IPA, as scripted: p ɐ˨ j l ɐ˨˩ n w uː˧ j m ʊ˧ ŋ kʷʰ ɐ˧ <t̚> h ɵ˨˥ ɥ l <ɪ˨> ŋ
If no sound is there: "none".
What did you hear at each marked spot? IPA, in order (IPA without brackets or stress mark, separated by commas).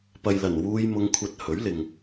t̚, ɪ˨